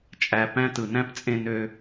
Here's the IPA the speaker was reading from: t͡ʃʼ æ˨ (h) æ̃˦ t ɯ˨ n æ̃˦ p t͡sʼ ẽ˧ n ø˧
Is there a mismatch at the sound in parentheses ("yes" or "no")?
yes